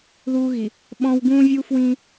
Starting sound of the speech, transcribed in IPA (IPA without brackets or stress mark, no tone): ð